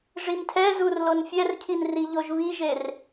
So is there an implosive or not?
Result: no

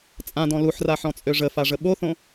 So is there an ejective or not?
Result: yes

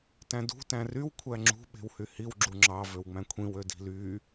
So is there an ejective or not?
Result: no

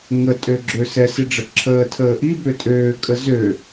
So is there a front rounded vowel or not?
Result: yes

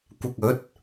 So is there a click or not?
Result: no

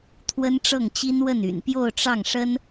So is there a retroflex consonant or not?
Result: yes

